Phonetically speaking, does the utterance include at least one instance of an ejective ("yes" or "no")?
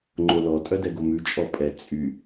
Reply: yes